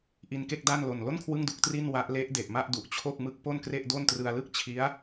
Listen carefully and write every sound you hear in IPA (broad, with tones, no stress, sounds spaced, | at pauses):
ʔ i˧ n k e˥˩ k̚ d a˥˩ n l o˨˩ n l o˥˩ n kʰ w ɯ˥˩ ŋ d u˦˥ k̚ t r i˥˩ n w a˦˥ ʔ l e˦˥ ʔ d e˨˩ ʔ m a˥˩ ʔ d u˨˩ ʔ t͡ɕʰ o˥˩ k̚ m ɯ˦˥ k̚ p o˥˩ n k r e˥˩ ʔ d o˥˩ n t r ɯ˧ a̯ l ɯ˥˩ k̚ t͡ɕʰ i˦˥ a̯